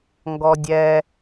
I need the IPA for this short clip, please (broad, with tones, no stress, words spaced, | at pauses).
ŋɡɔ˥dʲɛ˥